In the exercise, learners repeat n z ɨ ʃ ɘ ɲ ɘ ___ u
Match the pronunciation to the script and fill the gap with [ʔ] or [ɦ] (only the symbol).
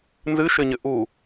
ʔ